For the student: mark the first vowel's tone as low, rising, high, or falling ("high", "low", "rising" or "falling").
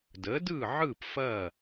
rising